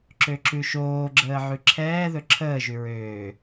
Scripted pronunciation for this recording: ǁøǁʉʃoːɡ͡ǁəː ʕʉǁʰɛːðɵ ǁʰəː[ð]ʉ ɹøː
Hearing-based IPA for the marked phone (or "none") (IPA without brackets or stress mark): ʒ